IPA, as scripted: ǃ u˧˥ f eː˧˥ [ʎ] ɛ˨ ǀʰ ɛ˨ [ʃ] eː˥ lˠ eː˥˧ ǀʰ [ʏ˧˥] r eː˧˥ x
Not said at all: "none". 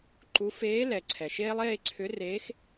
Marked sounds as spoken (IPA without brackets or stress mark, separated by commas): l, ʃ, ʏ˧˥